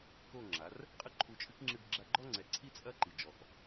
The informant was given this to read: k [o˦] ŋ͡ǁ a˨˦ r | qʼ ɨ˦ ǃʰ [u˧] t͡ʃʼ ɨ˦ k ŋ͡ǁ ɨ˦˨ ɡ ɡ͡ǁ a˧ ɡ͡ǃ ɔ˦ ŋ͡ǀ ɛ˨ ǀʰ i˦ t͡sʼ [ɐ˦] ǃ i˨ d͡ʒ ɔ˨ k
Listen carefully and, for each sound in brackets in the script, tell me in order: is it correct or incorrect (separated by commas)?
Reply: incorrect, correct, correct